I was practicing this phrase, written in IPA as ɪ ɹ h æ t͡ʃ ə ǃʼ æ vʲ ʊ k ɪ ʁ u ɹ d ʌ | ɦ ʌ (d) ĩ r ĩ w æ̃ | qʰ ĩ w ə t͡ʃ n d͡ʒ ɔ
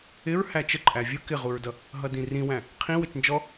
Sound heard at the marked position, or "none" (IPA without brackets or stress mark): d